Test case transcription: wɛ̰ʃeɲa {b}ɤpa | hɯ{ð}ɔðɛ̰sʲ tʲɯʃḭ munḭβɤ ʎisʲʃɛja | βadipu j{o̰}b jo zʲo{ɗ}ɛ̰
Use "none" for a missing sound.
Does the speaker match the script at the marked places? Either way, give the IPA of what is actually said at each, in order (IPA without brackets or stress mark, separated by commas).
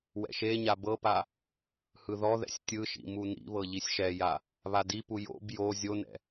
b, ð, o̰, n